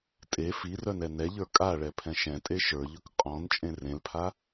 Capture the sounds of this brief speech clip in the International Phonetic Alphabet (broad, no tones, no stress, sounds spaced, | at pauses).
tʼ e f i r œ n ɛ n ɛ ʎ ə˞ kʼ a ɭ ɛ pʰ ɛ̃ ʃ ɛ̃ tʼ e ʃ ə˞ ʎ ɵ k qʼ ɔ̃ n t͡ʃʼ ẽ r ẽ l pʰ a